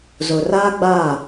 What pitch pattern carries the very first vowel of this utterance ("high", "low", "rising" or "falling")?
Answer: low